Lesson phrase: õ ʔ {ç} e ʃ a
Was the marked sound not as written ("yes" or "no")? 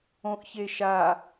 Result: no